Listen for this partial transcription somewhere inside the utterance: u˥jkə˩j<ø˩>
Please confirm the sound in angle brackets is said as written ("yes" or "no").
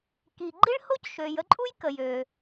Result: yes